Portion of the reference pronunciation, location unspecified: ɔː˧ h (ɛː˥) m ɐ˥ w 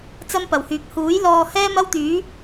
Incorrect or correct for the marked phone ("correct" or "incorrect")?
correct